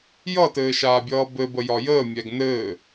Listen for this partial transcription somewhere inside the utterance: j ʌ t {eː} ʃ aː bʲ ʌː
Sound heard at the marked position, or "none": ɘː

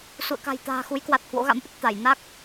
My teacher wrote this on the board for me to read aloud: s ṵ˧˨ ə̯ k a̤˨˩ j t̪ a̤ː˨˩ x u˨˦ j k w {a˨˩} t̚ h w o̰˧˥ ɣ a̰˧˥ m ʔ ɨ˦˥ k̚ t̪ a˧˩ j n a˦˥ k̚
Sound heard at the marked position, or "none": a˨˩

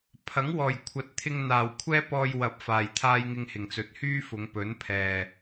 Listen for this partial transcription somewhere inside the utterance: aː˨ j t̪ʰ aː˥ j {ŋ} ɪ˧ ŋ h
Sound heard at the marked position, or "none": ŋ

